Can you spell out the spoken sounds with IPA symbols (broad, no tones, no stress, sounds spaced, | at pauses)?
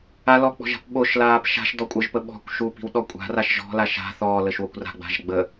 a l ɔ k͡p ɔ̤ ʒ a̤ p ɓ o ʃ l aː p ʃ a̤ ʃ d ɔ kʷʼ ɤ ʒ p ə ɓ ɔ̤ kʷ ʃ u p i̤ w ɗ ɔ kʷʼ a̤ r a ʃ ʒ ɔ̤ l a ʃ a̤ θ ɔː l ə ʃ w o kʷ r a̤ ɡ͡b a̤ ʒ ɡ͡b ə